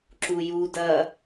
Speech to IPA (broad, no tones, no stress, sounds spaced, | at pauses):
ǁ u j u d ɐː